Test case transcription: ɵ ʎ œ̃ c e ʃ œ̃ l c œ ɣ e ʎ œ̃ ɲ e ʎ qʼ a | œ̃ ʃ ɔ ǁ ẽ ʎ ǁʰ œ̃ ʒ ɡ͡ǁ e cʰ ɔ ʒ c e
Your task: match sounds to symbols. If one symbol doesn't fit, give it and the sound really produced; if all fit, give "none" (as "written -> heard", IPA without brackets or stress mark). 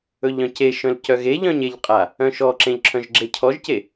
none